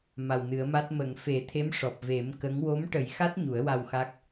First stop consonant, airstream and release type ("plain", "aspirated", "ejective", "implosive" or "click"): plain